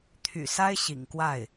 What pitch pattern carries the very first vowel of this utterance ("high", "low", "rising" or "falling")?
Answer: low